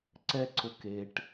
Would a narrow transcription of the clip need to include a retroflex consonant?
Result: yes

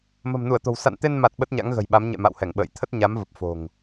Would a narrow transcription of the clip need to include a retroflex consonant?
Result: no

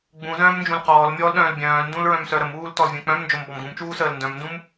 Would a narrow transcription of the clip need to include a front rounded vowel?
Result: yes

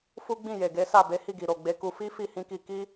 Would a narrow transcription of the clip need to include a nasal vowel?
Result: yes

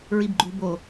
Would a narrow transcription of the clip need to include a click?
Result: yes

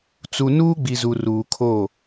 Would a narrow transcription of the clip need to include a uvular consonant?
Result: no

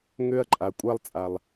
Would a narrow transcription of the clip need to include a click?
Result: yes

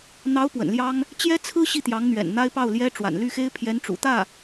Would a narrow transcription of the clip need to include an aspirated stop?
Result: yes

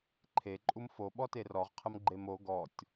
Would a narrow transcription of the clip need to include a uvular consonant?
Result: yes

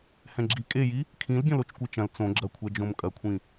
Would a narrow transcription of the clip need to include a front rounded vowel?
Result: no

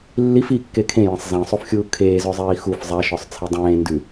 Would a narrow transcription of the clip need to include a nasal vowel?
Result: yes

